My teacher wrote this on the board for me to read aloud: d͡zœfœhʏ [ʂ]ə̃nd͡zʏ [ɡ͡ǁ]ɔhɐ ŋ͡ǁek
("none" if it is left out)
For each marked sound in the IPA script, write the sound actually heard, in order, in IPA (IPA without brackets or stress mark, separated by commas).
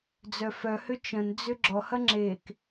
t͡ʃ, ɡ͡ǁ